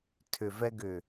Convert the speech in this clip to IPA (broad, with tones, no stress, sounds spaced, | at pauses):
tʰ ʏ˨ v ɛ˧ ɡ ʏ˨